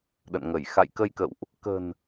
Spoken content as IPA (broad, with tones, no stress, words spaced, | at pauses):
ɗə̰˧˨n ŋə˧˩j xa̰˧˨jkə˧jkə̰˧˨wʔ | kə̤˨˩n